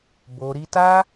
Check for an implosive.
absent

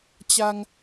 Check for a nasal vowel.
absent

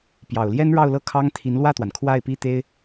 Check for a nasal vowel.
absent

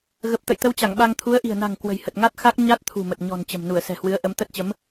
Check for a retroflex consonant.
absent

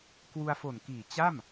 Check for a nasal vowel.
absent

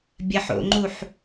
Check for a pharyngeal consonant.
present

